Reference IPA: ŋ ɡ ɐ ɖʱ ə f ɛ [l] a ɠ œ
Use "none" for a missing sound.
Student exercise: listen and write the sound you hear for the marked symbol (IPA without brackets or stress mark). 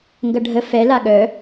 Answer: l